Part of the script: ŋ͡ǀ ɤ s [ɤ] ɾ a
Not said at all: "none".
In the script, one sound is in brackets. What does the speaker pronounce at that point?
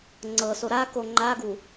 o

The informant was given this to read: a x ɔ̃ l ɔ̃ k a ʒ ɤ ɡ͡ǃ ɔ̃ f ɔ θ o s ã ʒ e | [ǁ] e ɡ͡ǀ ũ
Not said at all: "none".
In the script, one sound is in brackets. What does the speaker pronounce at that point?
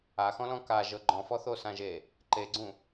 ǃ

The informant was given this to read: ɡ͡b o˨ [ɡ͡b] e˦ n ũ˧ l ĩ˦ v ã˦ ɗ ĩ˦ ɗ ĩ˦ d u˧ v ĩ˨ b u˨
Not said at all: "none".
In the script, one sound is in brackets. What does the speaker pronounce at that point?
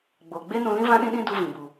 ɡ͡b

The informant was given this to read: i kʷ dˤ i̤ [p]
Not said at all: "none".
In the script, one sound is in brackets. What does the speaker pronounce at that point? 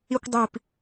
p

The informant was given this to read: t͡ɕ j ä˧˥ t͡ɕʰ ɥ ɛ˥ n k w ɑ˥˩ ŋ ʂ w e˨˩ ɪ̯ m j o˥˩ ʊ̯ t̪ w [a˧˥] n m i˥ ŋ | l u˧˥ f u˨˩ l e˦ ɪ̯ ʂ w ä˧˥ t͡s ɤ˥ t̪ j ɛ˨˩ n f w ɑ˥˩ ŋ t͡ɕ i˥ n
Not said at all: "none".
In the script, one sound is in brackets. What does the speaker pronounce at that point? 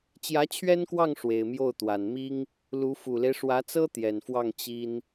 a˨˩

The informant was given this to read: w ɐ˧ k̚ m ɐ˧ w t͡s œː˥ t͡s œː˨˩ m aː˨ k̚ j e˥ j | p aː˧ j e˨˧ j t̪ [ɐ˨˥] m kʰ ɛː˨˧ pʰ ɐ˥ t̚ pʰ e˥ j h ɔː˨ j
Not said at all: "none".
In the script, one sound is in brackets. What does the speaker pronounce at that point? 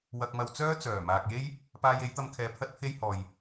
ɐ˧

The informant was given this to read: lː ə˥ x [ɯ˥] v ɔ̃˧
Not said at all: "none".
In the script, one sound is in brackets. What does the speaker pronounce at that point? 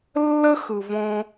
ɯ˩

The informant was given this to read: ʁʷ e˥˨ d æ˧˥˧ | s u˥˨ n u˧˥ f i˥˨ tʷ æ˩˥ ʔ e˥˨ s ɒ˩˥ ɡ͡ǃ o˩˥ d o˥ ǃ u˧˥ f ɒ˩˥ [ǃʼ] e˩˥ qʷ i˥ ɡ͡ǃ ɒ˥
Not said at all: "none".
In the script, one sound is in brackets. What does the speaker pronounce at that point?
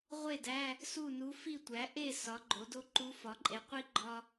ǃʼ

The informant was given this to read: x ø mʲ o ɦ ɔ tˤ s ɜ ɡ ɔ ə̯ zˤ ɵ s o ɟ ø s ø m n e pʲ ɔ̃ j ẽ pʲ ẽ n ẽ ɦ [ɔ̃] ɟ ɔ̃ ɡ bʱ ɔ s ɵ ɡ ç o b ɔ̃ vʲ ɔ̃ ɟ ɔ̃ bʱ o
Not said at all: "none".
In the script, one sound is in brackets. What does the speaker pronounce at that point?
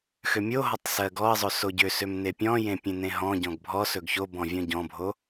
ɔ̃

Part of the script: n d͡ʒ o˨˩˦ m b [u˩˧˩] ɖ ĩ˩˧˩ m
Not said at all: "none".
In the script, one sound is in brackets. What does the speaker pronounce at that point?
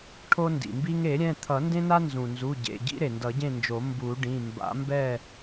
u˨˩˦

